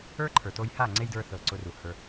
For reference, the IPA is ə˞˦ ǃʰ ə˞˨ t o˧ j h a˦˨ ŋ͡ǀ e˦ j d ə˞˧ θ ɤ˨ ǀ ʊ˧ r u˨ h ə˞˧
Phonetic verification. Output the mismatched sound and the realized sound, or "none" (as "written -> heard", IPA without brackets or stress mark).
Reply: none